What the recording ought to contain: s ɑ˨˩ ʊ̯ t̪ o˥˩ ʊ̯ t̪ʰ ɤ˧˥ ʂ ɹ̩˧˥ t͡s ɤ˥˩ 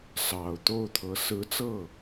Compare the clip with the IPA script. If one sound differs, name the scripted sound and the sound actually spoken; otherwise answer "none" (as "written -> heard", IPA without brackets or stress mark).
ʂ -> s